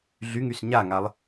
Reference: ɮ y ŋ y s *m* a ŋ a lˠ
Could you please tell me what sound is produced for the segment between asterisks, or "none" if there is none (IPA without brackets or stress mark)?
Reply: ɲ